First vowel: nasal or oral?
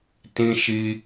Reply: nasal